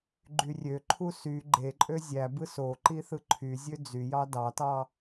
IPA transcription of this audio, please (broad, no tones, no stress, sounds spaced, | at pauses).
ɡ͡ǃ y rʲ ø ǃʰ u s y ɡ͡ǃ e ǃʼ ø zʲ æ b ɯ s o ǃ i θ ɯ ǃʰ y zʲ ø d͡z y j ɑ d ɑ t ɑ